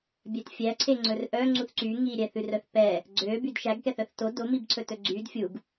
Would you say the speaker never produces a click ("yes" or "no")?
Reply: no